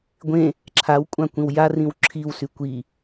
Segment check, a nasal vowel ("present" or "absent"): present